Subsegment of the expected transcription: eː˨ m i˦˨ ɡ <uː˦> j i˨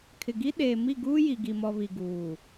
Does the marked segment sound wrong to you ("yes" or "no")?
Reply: no